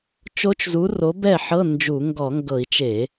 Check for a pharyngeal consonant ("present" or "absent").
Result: present